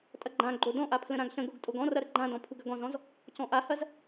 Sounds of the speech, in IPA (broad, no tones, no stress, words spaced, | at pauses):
tʼɐɡ͡ǃãɡ͡ǃo dɔ̃ʔa pʰlə̃ɾãɡɬə̃ɡoɡ tʼoɡɔ̃rɐ ɾəɡ͡ǃãdɔ̃ pʰuɡɐɡɔ̃zɔ̃z | cɔ̃ʔahɐz